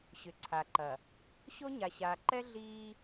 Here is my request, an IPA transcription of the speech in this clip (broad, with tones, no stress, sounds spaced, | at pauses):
ɕ ʏ˨ ǀʰ a˨ ǃ ɐ˨ | ɕ o˦ ɲ a˨ ɕ aː˨ ǃ ɛ˦ ɮ iː˦